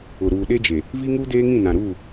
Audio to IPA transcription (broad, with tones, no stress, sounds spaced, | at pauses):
ʊ˨ ɾ uː˨ ɗ e˦ d͡ʒ e˨ | v i˦ ŋ uː˦ d eː˦ ŋ ĩ˦˨ n ã˨ ɾ uː˦˨